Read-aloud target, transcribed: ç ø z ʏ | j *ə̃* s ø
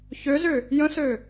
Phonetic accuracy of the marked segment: correct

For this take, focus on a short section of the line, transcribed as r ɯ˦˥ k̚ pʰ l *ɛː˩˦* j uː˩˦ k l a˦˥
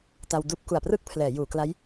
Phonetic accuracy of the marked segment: correct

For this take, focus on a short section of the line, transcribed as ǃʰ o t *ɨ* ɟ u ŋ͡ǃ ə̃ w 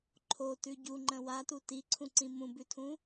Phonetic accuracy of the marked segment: incorrect: ʉ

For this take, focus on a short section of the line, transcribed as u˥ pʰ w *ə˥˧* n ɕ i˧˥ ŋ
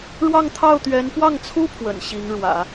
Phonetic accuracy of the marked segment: incorrect: ə̰˨˩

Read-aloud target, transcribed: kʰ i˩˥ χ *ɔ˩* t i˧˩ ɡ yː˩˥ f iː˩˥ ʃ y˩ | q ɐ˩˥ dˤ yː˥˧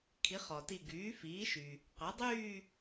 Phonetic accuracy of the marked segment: correct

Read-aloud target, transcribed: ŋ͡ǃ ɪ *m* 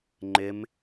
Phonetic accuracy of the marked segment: correct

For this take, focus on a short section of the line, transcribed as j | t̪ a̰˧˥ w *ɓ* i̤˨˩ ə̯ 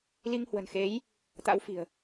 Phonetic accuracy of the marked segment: incorrect: f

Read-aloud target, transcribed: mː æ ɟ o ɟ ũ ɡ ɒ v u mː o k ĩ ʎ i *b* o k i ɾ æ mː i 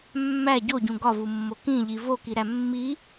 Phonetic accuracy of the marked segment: incorrect: v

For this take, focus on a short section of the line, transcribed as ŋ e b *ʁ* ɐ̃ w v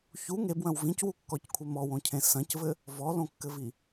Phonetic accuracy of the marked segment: incorrect: w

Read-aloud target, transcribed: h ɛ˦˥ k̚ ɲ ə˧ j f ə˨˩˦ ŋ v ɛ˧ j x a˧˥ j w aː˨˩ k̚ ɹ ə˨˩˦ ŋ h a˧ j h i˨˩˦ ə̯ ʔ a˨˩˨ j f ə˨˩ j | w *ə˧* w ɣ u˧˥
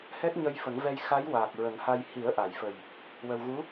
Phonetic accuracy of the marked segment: correct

